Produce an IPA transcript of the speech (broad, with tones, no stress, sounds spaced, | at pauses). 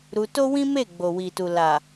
ɾ u˧ t o˦ w ĩ˦ m e˦˨ ɡ͡b o˨ w i˨ t u˨ l a˨